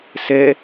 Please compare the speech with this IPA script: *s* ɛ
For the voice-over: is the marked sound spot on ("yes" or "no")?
yes